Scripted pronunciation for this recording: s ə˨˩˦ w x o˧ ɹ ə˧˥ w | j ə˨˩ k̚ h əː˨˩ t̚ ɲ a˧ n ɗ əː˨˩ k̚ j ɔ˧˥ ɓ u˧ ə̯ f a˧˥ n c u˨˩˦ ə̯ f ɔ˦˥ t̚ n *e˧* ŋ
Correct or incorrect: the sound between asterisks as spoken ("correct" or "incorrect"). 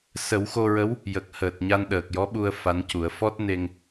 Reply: correct